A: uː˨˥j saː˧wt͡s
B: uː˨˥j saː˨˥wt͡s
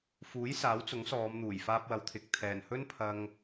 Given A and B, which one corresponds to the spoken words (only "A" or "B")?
B